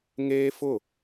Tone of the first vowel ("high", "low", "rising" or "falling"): high